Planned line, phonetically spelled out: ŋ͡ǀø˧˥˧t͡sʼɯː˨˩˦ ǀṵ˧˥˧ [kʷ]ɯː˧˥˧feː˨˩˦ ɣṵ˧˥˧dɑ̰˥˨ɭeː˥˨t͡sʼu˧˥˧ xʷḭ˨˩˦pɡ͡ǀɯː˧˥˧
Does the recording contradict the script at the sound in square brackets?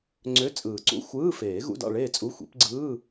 yes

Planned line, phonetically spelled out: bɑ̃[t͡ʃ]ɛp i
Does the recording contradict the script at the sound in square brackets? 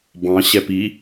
yes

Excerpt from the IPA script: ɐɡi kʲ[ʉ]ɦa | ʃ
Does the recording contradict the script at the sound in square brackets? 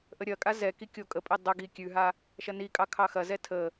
no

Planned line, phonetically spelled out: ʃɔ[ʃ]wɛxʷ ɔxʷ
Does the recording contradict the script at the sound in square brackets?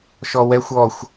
yes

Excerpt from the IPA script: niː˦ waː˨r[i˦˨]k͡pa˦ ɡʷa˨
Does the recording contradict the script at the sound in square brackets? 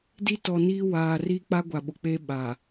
yes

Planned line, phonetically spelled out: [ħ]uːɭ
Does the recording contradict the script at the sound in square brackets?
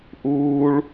yes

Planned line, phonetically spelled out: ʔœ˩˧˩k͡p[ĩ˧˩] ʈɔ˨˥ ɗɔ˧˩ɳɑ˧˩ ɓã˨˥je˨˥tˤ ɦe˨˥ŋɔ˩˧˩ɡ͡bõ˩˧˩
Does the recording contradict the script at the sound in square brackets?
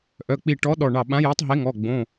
yes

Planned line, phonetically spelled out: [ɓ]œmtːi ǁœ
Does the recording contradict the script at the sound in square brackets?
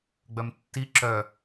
yes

